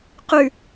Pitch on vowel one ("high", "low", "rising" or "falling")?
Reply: low